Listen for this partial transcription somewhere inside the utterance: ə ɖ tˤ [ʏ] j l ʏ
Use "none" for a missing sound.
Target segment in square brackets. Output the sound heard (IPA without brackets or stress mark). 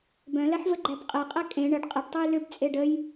u